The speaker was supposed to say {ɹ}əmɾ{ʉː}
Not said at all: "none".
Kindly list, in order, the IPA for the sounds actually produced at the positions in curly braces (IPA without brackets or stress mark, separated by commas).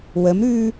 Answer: w, ʉː